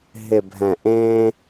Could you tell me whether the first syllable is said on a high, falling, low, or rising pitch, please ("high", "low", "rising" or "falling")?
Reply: low